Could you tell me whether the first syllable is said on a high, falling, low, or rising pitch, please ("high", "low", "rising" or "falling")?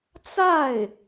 falling